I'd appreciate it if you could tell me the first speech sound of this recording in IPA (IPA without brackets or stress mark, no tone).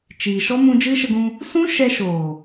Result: t͡ʃ